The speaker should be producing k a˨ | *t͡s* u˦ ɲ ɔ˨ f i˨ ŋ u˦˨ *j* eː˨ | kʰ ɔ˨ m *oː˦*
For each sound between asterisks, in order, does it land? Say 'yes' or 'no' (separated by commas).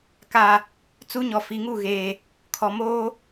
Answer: yes, no, yes